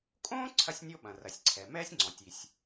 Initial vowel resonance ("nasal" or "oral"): nasal